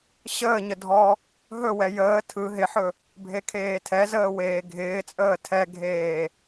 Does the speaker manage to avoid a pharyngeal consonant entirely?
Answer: no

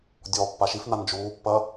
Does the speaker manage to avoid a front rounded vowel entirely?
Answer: yes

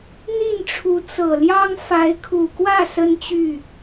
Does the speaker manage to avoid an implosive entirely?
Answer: yes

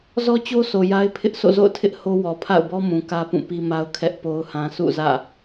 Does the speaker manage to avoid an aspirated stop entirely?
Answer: no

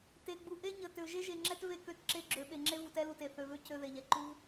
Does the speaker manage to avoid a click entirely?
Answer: no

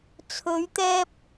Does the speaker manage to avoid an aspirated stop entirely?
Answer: no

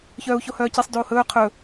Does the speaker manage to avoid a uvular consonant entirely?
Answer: no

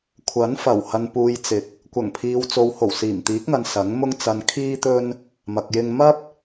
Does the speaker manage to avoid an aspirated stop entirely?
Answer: no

